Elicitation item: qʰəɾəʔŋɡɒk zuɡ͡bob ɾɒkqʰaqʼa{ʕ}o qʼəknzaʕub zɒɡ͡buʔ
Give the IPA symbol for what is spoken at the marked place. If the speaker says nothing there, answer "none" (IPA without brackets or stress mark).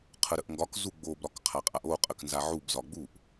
ʔ